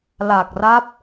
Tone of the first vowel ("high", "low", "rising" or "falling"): low